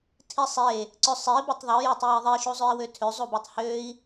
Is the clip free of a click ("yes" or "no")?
no